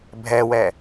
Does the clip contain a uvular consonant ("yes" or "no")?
no